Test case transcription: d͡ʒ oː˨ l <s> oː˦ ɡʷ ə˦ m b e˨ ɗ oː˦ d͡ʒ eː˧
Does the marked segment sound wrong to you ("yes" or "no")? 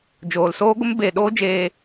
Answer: no